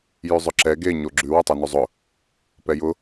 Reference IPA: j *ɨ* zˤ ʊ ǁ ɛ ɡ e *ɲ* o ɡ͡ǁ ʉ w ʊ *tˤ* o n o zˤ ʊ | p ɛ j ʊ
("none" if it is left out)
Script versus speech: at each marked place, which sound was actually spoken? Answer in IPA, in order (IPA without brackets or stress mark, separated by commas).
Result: ʉ, ɲ, tˤ